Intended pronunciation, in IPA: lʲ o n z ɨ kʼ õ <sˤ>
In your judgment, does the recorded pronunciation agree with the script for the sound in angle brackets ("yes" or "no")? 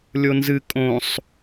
yes